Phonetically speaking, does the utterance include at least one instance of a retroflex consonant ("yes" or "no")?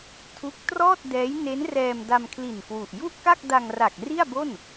no